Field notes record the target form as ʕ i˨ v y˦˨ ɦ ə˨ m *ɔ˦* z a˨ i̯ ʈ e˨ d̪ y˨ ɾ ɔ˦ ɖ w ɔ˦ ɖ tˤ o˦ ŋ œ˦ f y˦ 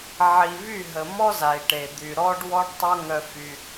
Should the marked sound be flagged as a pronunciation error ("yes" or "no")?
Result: no